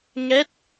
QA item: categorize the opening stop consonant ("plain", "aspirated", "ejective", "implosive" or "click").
plain